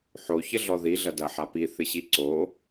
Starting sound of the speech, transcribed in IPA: ħ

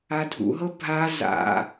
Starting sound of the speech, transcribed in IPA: a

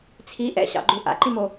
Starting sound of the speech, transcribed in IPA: t͡sʰ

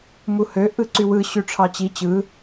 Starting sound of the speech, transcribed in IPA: m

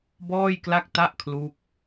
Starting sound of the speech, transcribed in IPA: b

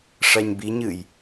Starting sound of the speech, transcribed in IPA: ʂ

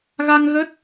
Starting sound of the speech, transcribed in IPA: ɣ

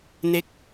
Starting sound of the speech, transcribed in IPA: n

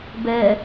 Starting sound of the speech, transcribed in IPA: b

